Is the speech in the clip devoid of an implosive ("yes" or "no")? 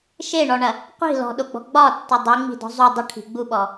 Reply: no